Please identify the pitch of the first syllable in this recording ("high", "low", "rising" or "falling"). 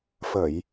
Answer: low